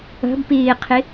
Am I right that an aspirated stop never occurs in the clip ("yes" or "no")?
no